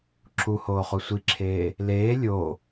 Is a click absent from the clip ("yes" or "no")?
no